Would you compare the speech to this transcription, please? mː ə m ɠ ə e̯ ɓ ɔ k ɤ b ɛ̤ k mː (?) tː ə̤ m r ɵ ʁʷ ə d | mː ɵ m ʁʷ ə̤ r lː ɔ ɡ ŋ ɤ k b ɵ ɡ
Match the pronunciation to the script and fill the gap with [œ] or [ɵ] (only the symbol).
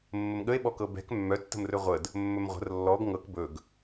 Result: œ